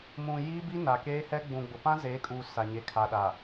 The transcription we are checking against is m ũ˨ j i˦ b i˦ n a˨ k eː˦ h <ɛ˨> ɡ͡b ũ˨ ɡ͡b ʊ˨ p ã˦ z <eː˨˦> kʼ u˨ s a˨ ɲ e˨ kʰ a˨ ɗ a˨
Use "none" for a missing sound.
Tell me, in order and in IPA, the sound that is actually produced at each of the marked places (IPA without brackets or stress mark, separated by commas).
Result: ɛ˦, eː˨˦